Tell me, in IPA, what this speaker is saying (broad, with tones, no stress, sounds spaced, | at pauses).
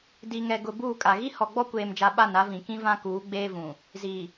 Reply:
d i˨ ŋ ɛ˨ ɡ ʊ˨ b uː˦˨ kʼ a˨ ɣ i˦ h ɔ˨ ɡ͡b ɔ˦ kʷ eː˨ m d͡ʒ a˨ ɓ a˦˨ n a˦ v ĩ˨ k ĩ˦ v ã˦ k uː˨˦ ɡ͡b eː˦ v ũ˨ | z i˨